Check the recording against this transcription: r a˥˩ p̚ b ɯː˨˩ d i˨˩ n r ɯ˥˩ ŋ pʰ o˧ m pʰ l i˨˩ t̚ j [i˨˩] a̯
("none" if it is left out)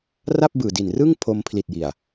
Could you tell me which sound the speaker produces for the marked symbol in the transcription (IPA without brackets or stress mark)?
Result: i˨˩